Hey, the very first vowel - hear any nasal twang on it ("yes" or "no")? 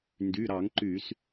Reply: no